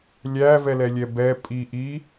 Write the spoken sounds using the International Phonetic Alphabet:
lʲ æ v ɛ l ɛ lʲ ɛ b ɛ pʼ i ʔ i

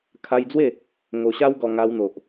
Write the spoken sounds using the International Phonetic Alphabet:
kʰ a˧ j d͡z w e˥˧ | ŋ o˨˩ ɕ a˦ w ɡ ɔ˨˩ ŋ a˧ w n̪ o˨ ʔ

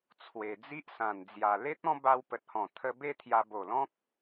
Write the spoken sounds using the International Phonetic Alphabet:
t͡sʰ w e˨˩ d͡z i˦ ʔ s ã˨˩ n d͡z j a˨˩ l e˦ t̚ ɔ̃˦ b a˧ w p ə˨ t̚ h ɔ̃˨˩ t̪ʰ ə˧ b e˦ t̪ʰ j a˧ b o˨˩ l ɔ̃˦ k̚

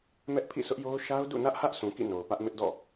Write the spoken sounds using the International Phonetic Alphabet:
m ɛ˦ ʔ pʰ ḭ˦˨ sʰ ʊ˦ ʔ j o˦ ʊ̯ ʃ a˦ ʊ̯ d ṵ˦˨ n ä˦ ʔ h ä˦ ʔ s ũ˨ k ḭ˦˨ n o˨ ʊ̯ p ä˦ ʔ m ɪ˦ ʔ d ɔ̰˦˨

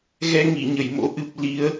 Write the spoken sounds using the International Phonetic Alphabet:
ɣ ɛ˧ ŋ i˧˩ ɲ ə˧˩ j m o̰˧˥ ʔ ɨ˨˩ p̚ l i˨˦ ə̯

